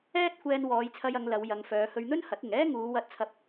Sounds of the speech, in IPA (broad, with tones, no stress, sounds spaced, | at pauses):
ɛː˥ t̚ kʷ ɛː˧ n w ɔː˨˧ j t͡sʰ ɐ˧ j ɐ˨˧ ŋ l ɐ˨˧ w j ɐ˨˧ ŋ f œː˨˧ h ɵ˧ ɥ n̪ ɵ˥ n h ɐ˨˥ t̚ ɪ˨ ŋ ɛː˥ ŋ uː˨˧ w ɐ˧ t̚ t͡sʰ ɐ˧ p̚